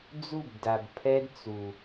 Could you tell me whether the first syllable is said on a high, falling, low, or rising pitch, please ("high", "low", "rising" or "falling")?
falling